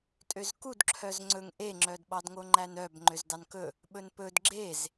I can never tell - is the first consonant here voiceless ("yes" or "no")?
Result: yes